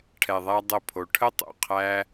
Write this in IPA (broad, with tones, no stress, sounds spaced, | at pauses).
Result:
ʈʰ ɛ˧ ðˤ æ˦ dˤ ə˦˨ pʰ o˧ ʈʰ ə˦ tˤ ṵ˨ qʰ æ˦